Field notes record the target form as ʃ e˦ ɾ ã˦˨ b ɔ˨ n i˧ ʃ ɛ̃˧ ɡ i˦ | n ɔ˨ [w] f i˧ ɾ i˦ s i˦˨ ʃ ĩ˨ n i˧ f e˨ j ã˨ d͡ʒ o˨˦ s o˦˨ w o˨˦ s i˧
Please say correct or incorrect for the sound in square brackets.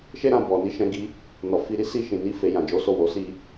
incorrect